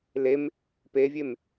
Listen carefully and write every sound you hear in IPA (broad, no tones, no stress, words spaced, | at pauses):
lem | pevʲem